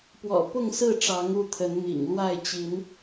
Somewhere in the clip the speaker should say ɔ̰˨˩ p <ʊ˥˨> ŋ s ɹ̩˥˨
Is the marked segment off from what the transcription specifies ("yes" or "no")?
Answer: no